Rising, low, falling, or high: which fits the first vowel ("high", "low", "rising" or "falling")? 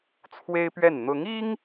high